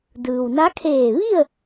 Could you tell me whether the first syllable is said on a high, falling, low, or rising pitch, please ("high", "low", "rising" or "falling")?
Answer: low